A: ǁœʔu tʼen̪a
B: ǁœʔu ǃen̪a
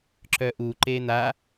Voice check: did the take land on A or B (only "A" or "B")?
B